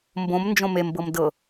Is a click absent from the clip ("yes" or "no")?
yes